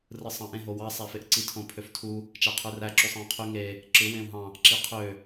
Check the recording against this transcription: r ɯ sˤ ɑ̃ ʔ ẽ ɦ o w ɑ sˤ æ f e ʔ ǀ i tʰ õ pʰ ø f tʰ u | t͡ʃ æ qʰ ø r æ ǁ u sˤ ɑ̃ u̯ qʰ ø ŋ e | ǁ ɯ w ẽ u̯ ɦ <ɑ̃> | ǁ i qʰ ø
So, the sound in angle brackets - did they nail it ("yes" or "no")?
yes